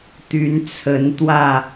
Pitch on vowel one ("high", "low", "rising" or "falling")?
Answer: rising